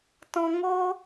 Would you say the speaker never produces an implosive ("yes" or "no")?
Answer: yes